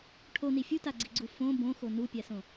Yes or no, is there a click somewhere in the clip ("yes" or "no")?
yes